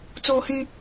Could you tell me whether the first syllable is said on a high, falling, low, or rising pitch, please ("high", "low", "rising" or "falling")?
high